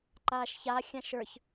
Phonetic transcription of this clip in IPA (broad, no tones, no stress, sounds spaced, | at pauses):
ǃ aː ʃ ç a xʲ ã ʃ ə˞ ç